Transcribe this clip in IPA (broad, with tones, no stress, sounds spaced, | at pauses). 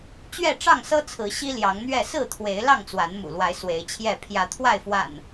t͡ɕ ɥ ɛ˥˨ ʈ͡ʂ ɑ˥˨ ŋ s ɤ˦ t͡sʰ ɹ̩˨˦ ɕ i˦ l j ɑ˨˦ ŋ n̪ ɥ ɛ˥˨ s ɹ̩˥˨ t̪ʰ w e˨˦ ɪ̯ l ɑ˥˨ ŋ t͡s w a˨˦ n m ṵ˨˩ l w a˨˦ ɪ̯ s w e˨˦ ɪ̯ t͡ɕʰ j ɛ˥˨ pʰ j ä˨˦ t̪ʰ w a˥˨ ɪ̯ f w a̰˨˩ n